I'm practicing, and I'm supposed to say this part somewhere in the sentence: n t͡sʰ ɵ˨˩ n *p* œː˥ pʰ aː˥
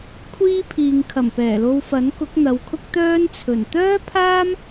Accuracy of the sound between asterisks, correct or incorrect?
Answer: incorrect